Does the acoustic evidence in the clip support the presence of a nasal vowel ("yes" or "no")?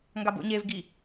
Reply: no